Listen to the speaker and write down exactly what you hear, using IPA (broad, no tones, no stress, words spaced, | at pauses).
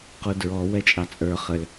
qudɹɔ wɛt͡ʃʼɑt͡sʼə˞ χəl